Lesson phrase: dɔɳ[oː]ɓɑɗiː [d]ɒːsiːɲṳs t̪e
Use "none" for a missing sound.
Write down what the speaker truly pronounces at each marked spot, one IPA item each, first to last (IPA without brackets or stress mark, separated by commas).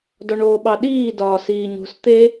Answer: oː, d